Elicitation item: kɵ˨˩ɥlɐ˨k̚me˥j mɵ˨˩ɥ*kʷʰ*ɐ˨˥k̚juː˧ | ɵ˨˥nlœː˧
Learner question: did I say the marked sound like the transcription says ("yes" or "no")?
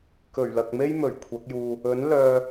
yes